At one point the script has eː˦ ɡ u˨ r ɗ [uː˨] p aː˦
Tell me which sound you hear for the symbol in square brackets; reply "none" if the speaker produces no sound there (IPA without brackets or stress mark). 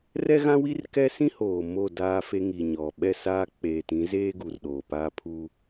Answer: oː˨